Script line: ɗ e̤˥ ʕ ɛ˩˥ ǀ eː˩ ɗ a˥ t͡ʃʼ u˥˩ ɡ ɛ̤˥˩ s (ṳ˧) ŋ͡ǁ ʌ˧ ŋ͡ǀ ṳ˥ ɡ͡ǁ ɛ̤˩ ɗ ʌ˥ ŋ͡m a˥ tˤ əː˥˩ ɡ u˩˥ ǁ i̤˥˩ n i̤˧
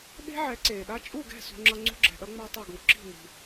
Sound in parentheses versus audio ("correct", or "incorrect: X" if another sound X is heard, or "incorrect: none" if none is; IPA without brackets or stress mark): correct